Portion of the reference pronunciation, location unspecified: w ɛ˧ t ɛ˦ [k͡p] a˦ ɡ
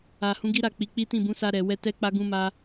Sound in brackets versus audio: correct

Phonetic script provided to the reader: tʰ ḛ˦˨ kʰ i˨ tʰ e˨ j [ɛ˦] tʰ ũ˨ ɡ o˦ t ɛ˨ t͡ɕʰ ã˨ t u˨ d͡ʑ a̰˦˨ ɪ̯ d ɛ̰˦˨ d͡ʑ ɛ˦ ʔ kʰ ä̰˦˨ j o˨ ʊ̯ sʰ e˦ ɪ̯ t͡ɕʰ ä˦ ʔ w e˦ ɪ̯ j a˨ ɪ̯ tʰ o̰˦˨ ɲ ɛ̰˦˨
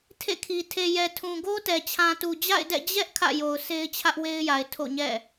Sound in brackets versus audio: incorrect: ɛ˨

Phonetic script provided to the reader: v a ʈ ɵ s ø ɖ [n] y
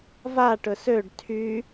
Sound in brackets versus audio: incorrect: tʰ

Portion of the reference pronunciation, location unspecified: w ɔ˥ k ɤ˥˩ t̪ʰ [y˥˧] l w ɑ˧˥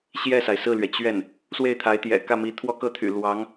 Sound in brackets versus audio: incorrect: y̰˨˩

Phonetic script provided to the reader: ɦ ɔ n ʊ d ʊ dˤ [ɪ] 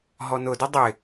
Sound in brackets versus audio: correct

